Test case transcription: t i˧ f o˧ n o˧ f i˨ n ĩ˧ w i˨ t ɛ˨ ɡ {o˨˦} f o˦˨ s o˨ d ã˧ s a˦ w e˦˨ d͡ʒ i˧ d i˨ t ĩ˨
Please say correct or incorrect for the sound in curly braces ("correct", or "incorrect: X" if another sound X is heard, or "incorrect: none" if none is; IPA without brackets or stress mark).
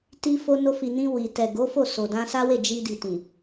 correct